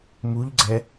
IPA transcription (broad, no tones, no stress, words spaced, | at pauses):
muʎɡ͡ǀɛ